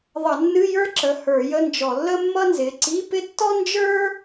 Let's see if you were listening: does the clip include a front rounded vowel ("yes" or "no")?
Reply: no